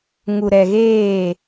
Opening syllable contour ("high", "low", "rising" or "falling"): low